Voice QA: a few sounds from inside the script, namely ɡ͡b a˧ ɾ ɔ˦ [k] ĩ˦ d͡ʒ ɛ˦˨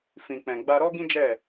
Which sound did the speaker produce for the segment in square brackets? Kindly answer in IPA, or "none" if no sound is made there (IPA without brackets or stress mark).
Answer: ɡ